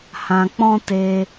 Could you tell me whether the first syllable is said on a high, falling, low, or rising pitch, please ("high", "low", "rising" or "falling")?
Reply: low